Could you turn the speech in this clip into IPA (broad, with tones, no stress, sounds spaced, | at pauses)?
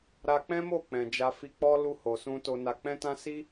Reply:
ɾ a˧ k͡p ɛ̃˦ m o˦˨ k͡p ɛ̃˨ d͡ʒ a˧ f i˧ k͡p ɔ˦ l u˧ h o˨ s ũ˧ t o˨ n a˨ k͡p ɛ̃˧ t ã˧ s i˦